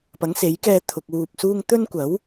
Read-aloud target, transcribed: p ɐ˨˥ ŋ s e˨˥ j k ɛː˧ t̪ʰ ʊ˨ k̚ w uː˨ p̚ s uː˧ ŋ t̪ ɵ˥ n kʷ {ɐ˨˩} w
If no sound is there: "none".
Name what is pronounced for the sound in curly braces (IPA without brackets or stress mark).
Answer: ɐ˨˥